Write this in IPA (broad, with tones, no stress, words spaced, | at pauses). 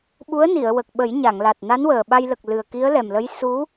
ɓu˧˥ə̯ni˨˩˨ə̯wə˨˩k̚ɓə˨˩˦j ɲa˨˩˨ŋla˨˩t̚ na˧˥nwəː˨˩ɓa˧jlə˨˩k̚ lɨ˨˩ə̯ki˧˥ə̯lɛ˨˩mlə˧˥j su˧˥